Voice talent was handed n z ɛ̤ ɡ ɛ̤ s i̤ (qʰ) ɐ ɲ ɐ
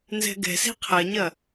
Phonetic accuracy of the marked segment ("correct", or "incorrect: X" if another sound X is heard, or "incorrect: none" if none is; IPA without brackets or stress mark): correct